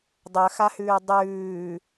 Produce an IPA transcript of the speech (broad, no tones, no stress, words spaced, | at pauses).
dˤœxahʉː dˤʉː